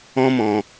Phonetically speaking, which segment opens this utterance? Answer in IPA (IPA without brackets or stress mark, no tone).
ɔ̃